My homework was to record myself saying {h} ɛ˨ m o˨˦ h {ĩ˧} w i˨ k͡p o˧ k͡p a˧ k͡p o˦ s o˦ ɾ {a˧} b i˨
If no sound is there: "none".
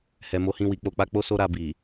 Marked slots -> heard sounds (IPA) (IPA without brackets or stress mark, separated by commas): h, ĩ˧, a˧